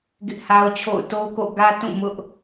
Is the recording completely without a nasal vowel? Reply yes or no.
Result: no